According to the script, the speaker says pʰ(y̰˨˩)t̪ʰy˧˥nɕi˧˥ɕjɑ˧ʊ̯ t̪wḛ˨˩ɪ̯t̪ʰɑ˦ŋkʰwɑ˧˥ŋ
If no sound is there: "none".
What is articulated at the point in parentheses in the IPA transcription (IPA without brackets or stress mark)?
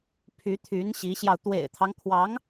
y˧˥